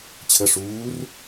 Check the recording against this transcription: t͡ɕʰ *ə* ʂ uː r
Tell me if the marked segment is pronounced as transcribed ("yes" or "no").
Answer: yes